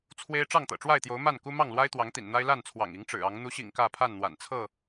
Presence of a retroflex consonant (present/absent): present